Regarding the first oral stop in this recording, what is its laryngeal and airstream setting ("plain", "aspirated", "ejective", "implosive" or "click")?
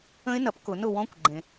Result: plain